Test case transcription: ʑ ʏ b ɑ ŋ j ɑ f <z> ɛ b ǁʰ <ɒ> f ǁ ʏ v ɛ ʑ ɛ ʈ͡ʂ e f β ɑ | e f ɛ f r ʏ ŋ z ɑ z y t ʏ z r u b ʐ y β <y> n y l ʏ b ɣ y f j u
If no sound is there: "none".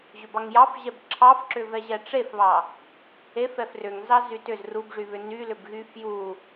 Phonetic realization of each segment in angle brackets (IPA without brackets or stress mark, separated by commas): ʑ, ɑ, ʏ